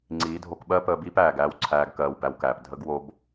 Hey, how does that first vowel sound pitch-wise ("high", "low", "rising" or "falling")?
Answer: rising